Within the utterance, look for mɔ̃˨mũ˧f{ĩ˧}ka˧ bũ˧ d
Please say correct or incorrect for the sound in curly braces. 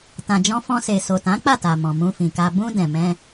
incorrect: ĩ˨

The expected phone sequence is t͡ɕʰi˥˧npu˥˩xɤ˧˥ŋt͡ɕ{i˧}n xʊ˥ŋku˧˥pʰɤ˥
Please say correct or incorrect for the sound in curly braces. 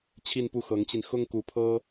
correct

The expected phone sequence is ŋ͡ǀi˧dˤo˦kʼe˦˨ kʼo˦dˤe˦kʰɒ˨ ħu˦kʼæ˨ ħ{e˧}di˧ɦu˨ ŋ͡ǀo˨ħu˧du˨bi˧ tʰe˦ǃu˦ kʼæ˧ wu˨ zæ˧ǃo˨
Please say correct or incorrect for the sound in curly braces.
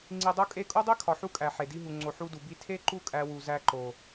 incorrect: e˨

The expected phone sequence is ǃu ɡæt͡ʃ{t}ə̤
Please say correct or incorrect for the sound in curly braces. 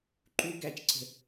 incorrect: ǀ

